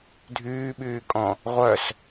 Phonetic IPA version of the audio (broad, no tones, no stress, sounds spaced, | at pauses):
dʱ yː ɓ yː kʼ ɔ̃ | ʁʷ œ s